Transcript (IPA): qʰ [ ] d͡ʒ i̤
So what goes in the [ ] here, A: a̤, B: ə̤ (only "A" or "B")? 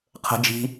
B